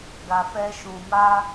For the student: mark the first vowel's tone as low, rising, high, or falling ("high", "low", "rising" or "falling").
low